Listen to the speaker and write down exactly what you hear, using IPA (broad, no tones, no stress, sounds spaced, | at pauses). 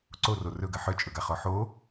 ǀ o r o r ɵ ɡ ɐ ħ œ t͡ʃʼ ɵ ɡ a χ ɔ ħ o